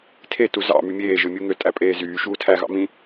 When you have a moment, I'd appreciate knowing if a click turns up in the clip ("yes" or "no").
no